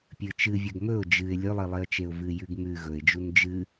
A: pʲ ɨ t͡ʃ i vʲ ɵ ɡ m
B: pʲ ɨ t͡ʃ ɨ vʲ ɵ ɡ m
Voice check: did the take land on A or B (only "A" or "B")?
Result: B